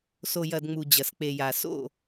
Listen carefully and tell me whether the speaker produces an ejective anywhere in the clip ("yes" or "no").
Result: no